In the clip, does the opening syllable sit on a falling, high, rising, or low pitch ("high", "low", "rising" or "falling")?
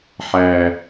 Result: low